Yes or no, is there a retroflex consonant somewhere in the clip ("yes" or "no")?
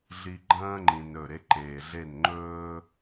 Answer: no